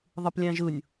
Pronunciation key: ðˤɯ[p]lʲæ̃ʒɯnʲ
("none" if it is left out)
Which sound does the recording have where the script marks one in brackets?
p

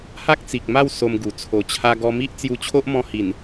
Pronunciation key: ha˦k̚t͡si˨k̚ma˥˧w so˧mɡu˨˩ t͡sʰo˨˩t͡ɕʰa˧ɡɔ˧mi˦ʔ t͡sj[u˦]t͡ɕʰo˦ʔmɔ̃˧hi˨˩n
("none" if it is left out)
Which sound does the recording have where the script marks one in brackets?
u˧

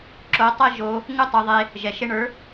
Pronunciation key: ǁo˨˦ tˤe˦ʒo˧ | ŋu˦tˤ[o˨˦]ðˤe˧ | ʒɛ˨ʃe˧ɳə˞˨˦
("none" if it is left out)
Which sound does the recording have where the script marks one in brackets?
o˧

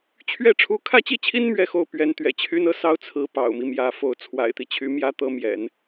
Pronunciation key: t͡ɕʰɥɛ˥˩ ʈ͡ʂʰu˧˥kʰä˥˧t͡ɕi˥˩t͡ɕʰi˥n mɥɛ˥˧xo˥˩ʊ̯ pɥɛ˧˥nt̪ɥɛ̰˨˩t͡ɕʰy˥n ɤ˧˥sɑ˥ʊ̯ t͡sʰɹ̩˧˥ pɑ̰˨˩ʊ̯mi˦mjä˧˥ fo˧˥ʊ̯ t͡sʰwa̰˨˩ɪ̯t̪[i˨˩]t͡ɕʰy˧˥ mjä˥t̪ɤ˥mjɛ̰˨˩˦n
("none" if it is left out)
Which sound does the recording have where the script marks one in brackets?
i˦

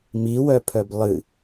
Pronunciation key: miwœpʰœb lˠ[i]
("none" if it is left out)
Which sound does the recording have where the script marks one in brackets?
ɨ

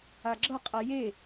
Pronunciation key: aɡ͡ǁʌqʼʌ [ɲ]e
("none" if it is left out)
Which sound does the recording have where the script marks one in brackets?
j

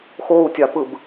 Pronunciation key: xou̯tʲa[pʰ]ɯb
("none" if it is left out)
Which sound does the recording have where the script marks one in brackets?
p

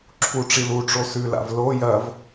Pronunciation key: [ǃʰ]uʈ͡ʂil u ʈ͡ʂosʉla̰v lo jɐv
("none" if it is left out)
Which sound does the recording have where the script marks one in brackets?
ǁʰ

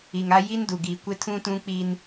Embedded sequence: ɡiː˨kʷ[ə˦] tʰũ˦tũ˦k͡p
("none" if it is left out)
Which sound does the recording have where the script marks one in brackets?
ɪ˦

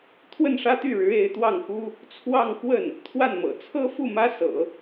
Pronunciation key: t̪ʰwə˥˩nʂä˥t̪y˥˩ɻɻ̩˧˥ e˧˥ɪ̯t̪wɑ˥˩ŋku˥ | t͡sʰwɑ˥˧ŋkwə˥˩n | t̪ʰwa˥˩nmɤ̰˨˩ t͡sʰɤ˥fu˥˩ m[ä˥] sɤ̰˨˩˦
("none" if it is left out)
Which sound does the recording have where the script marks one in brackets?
ä˥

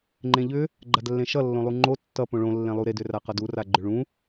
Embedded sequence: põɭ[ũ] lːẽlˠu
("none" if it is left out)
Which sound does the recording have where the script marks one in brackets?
õ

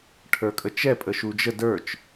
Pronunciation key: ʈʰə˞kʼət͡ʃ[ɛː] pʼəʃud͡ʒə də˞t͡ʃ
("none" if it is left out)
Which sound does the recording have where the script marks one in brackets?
ɛ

